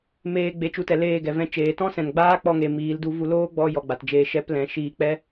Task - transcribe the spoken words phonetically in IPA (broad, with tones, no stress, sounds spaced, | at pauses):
m eː˧ ɡ͡b e˨˦ t͡ʃ u˧ t ɛ˨ l eː˦˨ ɡ ɛ˨ v ɛ̃˦ t͡ʃ eː˨ t ɔ̃˦ s ɛ̃˨ n ɡ͡b aː˦ k͡p ɔ˧ ŋ e˨ m iː˨˦ l d u˧ v u˧ l oː˦ ɡ͡b ɔ˧ j ɔ˨ ɡ͡b a˨ t d͡ʒ eː˧ ʃ ɛ˧ p l ɛ̃˨ ʃ iː˧ k͡p ɛ˦